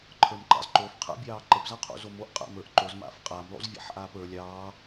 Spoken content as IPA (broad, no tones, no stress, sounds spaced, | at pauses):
ǃʰ ə˞ m ǃ ɑ̰ z ǃ o f qʰ a̰ bʲ ɑː ǃ ə p z ɑ qʰ o̰ z o m o ʔ qʼ a̰ m ə˞ ʔ ǃ o z m a̰ f qʼ a m lˠ o̰ z vʲ a̰ ħ ʔ aː p ə˞ lʲ ɑː